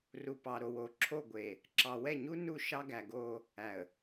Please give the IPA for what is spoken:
r u˨ p ɑ˨ ɾ o˨ w o˨ ǁʰ o˦˨ ɡʷ e˨ | ǁ ɑ˨ w ɛ˦˨ ɲ u˦ n u˦˨ ʃ ɑ˦ ɡ æ˨ ɡ o˦ | æ˨ ə̯

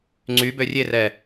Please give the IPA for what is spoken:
ŋ͡ǀ y b ø rʲ e r ɛ

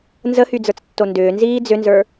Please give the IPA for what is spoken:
n z ə h y d͡z ə˞ t͡s tː o n d ʏː n z iː d͡z ʏ n z ə˞

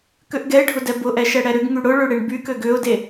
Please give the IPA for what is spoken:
k ø ʔ ɡ ɛ ɪ̯ ɖʱ ʊ d ɛ b ʊ ʔ ɛ ʃ ɛ ɽ ɛ ɾ ʏ ɡ ŋ y ɽ ʊ ɭ ø ɽ e ɳ b y k ø ɡ ʏ ʊ̯ d e

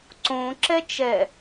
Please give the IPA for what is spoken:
ǀ õ ǁ ɛ t͡ʃ ɛ

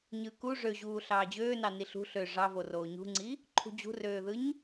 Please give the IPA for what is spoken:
ɲ ɯ k u ʐ ø ʑ uː ɬ ɑː d͡ʑ øː n ɑ n i ɬ ṳ ɬ ø ʐ ɑ v o r oː ɲ ṳ ŋ͡ǀ i | ǃʰ ṳ d͡ʑ ṳ r øː ð ɯ ɲ

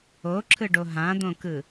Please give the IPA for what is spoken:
o ǁʰ ɯ ɖ o ɦ ã d̪ õ k ɯ

